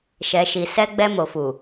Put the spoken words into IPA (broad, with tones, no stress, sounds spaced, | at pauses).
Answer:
ʃ ɛ˨ ʃ i˨ s ɛ˧ ɡ͡b ɛ˧ m o˨ f u˨